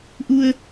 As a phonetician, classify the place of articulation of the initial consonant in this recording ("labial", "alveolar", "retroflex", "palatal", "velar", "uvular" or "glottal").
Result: glottal